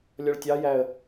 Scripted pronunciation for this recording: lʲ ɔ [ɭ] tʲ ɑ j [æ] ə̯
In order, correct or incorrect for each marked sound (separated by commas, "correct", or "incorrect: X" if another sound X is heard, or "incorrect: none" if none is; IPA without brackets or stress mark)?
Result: correct, correct